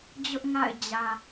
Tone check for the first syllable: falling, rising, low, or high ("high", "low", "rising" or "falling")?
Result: high